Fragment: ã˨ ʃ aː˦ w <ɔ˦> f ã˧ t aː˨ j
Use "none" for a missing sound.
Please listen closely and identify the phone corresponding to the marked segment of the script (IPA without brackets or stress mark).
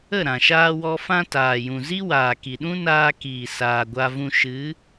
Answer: ɔ˦